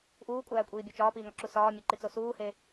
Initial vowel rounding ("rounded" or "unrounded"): rounded